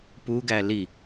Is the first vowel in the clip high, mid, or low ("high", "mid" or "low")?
high